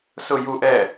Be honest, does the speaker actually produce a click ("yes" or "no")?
no